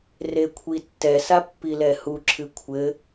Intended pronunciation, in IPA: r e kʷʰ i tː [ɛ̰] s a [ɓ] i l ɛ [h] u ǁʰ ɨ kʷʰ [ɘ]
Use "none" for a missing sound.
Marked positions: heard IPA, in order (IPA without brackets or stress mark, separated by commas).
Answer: ɛ, pː, h, ɘ